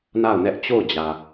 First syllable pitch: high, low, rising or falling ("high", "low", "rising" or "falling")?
falling